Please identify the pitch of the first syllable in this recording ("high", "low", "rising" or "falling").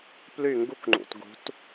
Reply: falling